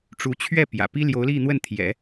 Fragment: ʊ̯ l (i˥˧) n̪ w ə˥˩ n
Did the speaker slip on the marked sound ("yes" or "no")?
no